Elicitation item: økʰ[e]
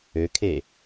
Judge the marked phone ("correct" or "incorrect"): correct